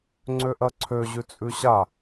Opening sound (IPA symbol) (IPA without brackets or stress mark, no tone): ŋ͡ǀ